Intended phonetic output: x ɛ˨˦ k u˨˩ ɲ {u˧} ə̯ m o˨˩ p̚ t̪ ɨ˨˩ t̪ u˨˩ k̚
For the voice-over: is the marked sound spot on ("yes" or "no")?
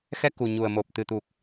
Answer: no